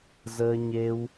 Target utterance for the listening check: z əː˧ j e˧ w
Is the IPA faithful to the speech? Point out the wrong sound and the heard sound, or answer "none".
j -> ɲ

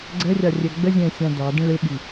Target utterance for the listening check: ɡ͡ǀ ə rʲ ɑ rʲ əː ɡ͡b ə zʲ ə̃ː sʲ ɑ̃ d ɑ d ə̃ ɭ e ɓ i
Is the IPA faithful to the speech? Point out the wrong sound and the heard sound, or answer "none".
none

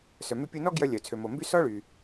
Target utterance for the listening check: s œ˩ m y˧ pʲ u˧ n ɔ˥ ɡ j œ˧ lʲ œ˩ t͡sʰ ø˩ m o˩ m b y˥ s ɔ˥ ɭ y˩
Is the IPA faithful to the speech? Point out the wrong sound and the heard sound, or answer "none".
none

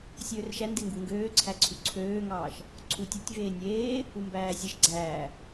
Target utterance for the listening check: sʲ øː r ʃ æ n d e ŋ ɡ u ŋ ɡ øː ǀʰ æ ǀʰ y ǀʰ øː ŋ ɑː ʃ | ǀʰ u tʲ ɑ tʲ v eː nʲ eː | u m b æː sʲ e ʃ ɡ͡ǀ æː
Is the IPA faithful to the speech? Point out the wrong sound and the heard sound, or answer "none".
none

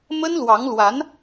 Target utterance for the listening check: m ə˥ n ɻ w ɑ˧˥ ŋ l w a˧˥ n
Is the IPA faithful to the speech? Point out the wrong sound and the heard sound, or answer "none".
ɻ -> l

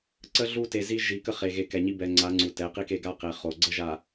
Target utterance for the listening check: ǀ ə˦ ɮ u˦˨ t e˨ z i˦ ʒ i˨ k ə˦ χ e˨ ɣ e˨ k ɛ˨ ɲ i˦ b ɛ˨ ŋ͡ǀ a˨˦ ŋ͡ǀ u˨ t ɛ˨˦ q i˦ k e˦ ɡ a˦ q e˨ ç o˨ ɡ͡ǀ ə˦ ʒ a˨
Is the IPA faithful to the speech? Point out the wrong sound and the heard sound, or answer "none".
ç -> χ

